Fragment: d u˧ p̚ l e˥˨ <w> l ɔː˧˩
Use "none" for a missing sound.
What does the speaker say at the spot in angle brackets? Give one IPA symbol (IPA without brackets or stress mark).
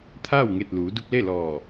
none